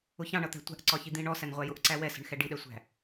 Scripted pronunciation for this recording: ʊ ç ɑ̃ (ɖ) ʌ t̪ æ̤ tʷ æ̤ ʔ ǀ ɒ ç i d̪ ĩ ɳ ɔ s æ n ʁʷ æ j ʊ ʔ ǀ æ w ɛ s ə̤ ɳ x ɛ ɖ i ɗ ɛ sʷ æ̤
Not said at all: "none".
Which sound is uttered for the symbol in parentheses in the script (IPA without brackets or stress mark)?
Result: ɳ